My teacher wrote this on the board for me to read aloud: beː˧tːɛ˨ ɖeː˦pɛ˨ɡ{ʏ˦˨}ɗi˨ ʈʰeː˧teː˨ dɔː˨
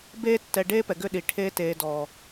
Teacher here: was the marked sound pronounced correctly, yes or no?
yes